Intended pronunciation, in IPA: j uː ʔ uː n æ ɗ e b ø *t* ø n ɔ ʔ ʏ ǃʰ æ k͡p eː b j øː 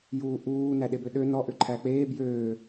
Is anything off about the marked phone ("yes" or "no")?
yes